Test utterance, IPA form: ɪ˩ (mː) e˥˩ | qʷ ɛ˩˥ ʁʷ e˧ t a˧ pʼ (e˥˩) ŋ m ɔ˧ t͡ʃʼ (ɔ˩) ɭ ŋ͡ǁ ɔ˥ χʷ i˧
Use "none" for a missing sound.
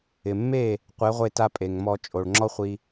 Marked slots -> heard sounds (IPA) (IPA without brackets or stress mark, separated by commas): mː, e˩, o˩